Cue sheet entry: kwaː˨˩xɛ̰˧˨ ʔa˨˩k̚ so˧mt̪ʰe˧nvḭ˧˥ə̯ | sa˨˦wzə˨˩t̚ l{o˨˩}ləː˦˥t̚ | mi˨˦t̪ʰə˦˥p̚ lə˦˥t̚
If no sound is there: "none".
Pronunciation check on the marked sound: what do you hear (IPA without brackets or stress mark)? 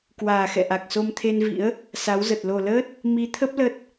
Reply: o˨˩